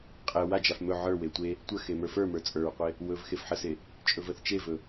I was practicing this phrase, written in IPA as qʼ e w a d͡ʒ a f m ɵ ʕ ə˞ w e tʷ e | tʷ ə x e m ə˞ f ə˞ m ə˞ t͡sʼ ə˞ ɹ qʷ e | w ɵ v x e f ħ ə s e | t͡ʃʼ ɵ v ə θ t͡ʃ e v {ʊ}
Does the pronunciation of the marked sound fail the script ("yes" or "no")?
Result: yes